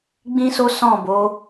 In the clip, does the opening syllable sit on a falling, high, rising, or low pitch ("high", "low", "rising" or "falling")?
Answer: high